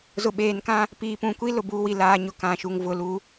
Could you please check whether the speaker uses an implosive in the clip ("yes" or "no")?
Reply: yes